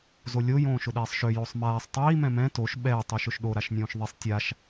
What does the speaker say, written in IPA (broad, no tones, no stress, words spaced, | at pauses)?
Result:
zolʲo jõːʃʊɗɛːsˤʃø josˤmaːsˤ tˤiː mɛ̃mɛ̃ toʃ ɓɛː tˤyʃʊʃɗo ɾaʃnʲõːʃðˤisˤ tʲaʃ